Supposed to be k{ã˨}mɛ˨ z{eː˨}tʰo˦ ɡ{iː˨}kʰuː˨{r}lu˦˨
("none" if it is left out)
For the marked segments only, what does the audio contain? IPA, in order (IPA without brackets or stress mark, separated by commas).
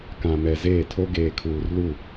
ã˨, eː˦˨, eː˨, r